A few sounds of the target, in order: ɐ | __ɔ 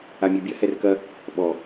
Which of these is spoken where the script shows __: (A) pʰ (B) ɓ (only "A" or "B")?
B